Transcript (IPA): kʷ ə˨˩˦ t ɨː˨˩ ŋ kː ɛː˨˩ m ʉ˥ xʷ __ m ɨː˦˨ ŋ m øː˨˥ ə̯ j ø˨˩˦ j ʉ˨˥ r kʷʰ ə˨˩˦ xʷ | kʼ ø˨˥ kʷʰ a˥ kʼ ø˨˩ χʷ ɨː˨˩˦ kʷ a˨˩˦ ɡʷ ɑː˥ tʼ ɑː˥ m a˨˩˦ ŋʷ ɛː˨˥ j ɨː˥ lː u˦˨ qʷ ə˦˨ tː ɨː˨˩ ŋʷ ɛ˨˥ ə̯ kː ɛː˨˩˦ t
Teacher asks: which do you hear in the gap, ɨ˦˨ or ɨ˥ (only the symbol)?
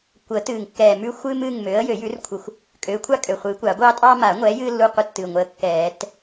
ɨ˥